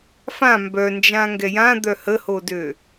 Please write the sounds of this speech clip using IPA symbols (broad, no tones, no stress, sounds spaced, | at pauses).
f ã m b œ n d͡ʒ ã ŋ ɡ ɛ j ã d̪ œ h ə h o d ø